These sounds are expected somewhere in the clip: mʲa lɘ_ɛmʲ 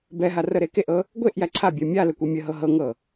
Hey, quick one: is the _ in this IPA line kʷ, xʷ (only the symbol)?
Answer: kʷ